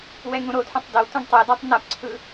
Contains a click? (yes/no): yes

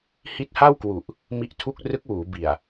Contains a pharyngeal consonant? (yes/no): no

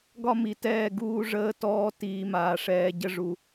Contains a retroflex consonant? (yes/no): yes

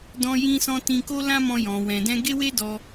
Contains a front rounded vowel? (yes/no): no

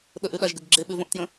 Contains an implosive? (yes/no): yes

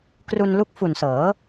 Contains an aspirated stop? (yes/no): no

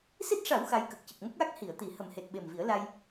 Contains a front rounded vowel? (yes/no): no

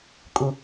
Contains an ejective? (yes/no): yes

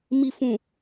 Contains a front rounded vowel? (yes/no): no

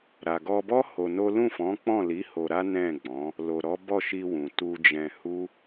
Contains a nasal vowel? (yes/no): yes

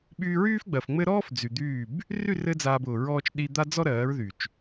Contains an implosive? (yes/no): yes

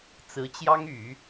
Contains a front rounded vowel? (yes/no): yes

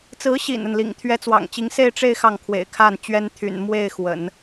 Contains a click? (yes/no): no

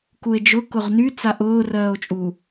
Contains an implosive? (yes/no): no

